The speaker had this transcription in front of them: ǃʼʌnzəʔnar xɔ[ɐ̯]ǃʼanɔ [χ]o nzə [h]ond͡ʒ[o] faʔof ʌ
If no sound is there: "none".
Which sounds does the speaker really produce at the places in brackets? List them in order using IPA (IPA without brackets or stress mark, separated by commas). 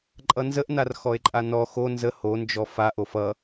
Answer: e̯, x, h, ɔ